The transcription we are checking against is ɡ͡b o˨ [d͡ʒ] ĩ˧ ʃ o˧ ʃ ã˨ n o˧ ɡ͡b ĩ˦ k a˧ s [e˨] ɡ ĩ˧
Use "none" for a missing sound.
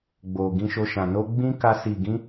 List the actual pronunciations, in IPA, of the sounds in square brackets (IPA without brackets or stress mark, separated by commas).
ɡ, i˨